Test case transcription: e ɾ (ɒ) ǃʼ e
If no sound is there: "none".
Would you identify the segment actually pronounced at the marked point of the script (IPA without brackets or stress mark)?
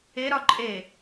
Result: ɒ